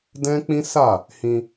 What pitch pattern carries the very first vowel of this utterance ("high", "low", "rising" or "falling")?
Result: high